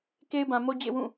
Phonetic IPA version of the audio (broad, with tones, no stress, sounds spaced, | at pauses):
k e˦ ɪ̯ b ã˨ m o˦ d͡ʑ ḛ˦˨ w ũ˦˨